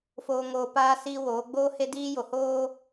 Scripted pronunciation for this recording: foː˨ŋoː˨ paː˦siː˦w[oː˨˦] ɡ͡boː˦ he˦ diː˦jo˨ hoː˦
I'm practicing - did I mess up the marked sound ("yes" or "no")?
no